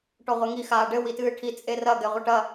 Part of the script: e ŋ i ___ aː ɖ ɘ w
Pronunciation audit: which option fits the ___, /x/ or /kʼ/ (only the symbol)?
x